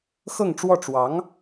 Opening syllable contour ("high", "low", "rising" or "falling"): falling